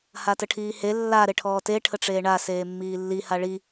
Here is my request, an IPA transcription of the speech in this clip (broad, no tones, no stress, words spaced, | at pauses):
hatəʈʰiːhe lːa ɾeʈʰɔːte ʈʰəʈ͡ʂeːɳa seːmːiːlːi haɭi